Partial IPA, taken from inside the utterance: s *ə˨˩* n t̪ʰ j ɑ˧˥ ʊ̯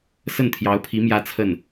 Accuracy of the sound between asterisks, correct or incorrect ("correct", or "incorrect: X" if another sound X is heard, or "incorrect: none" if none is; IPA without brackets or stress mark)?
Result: incorrect: ə˥˩